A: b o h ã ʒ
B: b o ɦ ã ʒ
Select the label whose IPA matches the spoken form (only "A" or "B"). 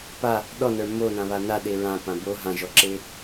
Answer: B